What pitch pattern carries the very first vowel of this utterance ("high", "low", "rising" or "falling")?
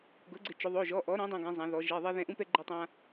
rising